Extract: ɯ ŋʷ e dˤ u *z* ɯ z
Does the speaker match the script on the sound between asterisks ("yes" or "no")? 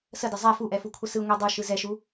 no